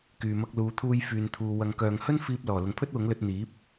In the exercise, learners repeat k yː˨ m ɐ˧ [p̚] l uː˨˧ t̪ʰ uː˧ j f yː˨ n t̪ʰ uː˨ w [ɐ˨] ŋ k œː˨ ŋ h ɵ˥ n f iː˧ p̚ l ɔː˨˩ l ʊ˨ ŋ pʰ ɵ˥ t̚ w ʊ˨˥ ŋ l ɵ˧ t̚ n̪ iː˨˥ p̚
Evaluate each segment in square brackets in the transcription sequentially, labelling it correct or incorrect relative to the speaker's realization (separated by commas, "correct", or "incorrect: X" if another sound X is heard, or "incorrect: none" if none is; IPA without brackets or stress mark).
incorrect: k̚, correct